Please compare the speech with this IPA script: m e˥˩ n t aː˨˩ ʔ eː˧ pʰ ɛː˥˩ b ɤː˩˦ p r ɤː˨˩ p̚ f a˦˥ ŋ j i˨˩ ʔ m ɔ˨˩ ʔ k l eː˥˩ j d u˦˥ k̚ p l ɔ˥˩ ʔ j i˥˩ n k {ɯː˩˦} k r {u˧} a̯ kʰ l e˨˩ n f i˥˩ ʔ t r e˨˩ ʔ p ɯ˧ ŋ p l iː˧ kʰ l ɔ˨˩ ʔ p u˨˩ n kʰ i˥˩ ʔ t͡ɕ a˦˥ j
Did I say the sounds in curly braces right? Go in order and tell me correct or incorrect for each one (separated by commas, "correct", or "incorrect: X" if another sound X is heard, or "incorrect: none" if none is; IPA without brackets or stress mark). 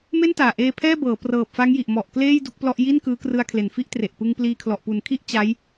incorrect: ɯː˦˥, incorrect: ɯ˧